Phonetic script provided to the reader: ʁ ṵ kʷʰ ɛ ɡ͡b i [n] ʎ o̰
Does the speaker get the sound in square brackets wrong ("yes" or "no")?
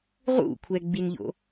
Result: no